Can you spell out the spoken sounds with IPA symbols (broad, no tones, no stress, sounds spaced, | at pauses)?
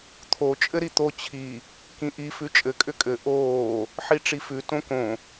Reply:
t̪ʰ o t͡ʃʼ ɘ ɾ i t̪ o t͡ɕʰ i | k ĩ ʔ i f ʉ t͡ʃʼ ɘ kʼ ʏ kʼ ɘ ʔ oː | ħ i ʈ͡ʂ i f ʉ t õ k õ